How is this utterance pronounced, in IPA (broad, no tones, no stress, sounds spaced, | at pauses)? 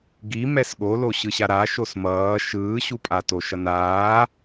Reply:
ɡ i m ɛ s ɠ o l o ɕ ɯ ɕ a ɾ a ʃ o s m ʌː ʃ ɯː ɕ u pʼ a t o ʃ ʌ n aː